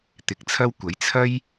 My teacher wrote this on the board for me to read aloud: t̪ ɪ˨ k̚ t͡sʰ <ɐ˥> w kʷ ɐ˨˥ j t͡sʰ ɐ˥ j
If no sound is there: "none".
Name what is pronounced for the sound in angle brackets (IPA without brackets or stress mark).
ɐ˥